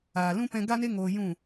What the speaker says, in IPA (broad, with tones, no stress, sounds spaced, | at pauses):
aː˨ l ũ˦ p ɛ̃˧ ɡ a˦ n e˦ ŋ oː˧ j ũ˦˨